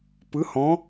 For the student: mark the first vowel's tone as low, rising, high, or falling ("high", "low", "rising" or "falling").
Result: rising